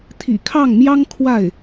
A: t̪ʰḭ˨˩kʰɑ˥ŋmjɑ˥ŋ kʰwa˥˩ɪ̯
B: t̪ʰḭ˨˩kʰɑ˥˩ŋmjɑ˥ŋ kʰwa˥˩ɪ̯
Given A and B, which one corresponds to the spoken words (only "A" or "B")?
B